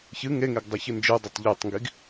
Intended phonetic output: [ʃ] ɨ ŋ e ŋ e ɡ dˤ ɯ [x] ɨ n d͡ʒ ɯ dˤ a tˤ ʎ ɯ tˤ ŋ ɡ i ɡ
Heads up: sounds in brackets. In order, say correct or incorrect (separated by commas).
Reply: incorrect, incorrect